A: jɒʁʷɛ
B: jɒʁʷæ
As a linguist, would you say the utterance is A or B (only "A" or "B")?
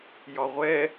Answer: A